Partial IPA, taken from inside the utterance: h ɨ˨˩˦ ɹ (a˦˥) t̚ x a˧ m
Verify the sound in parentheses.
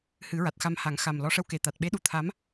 incorrect: a˨˩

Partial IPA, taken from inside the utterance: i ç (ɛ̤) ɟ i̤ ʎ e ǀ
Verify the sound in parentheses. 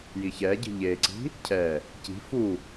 incorrect: ɛ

